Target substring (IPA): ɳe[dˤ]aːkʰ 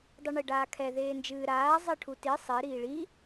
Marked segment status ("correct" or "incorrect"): incorrect